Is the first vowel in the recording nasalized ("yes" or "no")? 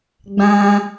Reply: yes